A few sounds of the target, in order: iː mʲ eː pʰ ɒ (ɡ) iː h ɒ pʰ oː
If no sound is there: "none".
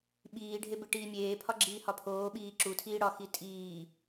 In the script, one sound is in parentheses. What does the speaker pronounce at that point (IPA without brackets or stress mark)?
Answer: ɡ͡ǁ